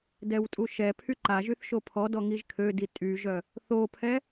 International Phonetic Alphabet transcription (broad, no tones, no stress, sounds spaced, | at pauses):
d ɛ w tʼ u ʃ ɛ pʰ y ǃ a ʒ y θ ʃ o pʰ ɔ d ɔ ŋ i ʒ kʰ ø d i tʼ y ʒ œ | θ o pʰ ɛ